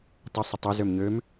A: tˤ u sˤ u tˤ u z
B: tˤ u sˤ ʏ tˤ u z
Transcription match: B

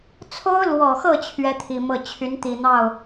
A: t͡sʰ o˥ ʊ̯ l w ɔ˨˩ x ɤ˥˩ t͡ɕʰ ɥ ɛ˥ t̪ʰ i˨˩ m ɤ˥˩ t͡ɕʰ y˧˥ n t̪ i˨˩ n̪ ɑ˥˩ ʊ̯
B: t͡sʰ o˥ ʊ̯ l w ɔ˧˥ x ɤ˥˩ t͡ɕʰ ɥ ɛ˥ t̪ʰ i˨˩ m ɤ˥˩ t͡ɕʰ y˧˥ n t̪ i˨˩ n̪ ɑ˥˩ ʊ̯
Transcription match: A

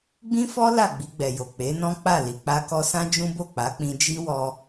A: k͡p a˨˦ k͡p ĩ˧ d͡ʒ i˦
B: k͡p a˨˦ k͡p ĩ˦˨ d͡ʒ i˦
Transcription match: A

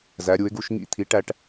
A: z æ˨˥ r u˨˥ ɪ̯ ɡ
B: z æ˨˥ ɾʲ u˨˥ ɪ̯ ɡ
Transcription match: B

